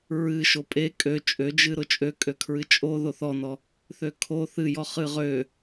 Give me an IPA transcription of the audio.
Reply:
ɹɨʃo pʼe kʼø t͡ʃʼød͡ʒɨ ɾʊt͡ʃʼøkʼøkʰɹɨ t͡ʃʼo ðoθɔnɔ | θøkʰo θɨjɔ χɨʁø

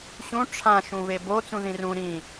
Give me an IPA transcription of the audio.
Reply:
ɕũ ʈ͡ʂʰã ʃũβebo t͡sũðĩrũ ɾĩ

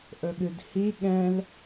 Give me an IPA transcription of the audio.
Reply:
ʔɵɠɨdhi ɠɛ̃l

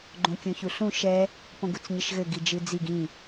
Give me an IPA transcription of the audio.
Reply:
ɡ͡ǃõkʲõçuɬũ ʃɛ | põɡut͡sɲɘʃɣɘ ɡid͡ʒɨd͡ziɡ ĩ

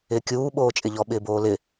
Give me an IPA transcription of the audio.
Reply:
ɪːkʲuː ɓoːt͡ʃʼɪʎɔ ɓɪːboːlɪ

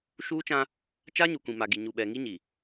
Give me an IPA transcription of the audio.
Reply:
ʃuː˦t͡ʃã˦ | t͡ʃa˦ɲu˨ kʷĩ˨ma˨ɡi˨ ɲu˨ɓɛ˨ ŋi˦ɲi˨

